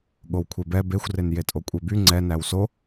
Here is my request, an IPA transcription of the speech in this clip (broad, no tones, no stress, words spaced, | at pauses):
ɠowkʷʰebɛ bexʷren jetʼokʷʼeby ŋ͡ǀɛ næwso